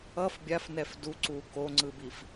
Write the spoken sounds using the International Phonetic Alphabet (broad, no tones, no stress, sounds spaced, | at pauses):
ʌ f bʲ a f n ɛ f d u ǀ u k o ŋ͡ǀ ɯ b i f